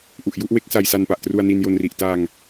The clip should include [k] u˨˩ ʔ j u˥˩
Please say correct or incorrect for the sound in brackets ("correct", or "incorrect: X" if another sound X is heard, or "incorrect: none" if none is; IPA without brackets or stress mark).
incorrect: ʔ